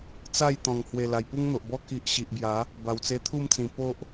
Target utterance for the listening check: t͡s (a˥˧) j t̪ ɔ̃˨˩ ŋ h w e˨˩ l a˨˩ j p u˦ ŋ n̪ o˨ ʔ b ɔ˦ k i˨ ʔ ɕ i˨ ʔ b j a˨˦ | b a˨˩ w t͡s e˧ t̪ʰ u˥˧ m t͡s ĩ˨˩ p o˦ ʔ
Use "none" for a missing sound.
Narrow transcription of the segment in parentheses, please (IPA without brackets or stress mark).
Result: a˥˧